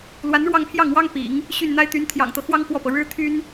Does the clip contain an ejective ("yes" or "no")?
no